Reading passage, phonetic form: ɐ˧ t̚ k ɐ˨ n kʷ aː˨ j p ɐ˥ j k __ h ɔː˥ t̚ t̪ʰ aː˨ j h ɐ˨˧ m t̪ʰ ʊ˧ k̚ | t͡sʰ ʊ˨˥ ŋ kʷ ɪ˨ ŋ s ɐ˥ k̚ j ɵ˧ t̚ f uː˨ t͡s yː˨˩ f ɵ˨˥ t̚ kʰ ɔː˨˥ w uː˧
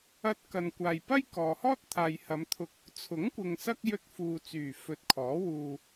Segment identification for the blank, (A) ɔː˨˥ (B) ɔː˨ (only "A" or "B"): B